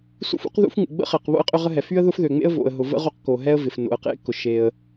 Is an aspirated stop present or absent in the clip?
absent